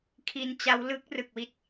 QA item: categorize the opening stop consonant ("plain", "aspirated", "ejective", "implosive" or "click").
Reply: aspirated